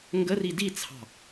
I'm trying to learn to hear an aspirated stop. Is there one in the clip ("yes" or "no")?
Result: yes